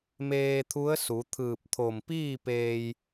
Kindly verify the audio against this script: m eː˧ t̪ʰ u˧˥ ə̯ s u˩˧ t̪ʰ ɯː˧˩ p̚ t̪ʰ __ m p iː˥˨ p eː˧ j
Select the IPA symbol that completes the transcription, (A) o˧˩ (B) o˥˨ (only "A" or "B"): A